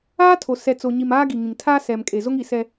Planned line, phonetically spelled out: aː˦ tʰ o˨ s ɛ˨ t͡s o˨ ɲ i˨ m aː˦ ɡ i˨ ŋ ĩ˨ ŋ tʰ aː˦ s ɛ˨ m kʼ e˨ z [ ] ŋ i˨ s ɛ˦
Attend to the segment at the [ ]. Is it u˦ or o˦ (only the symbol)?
o˦